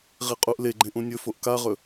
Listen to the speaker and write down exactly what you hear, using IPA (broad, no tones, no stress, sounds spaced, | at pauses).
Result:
ʁ i qʼ u ʔ l e ɡ͡ǃ ẽ ʔ ũ nʲ ɵ f o ʔ k a ʁ ɵ